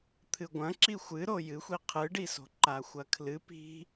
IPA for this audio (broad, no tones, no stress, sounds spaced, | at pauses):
t̪ʰ ɨ ɡʷ ɐ̃ ǁ i xʷ ɨ ɾ o j ɨ xʷ i qʰ ɨ ɖ i s o̤ ǃ a xʷ ɐ kʰ l ɨ p i̤